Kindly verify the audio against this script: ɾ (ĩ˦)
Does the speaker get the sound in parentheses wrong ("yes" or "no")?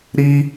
yes